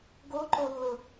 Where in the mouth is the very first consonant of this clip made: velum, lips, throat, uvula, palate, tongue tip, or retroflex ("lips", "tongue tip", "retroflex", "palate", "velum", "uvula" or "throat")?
velum